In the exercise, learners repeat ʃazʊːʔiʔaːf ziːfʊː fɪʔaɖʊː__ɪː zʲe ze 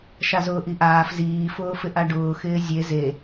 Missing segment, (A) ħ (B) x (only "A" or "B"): B